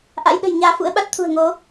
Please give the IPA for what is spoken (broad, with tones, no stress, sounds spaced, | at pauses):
ʔ a̰˧˥ j ɗ ə̤˨˩ j ɲ aː˧ f ṵ˧˥ ə̯ ɓ a˦˥ t̚ t̪ʰ ṳ˨˩ ə̯ ŋ o˨˦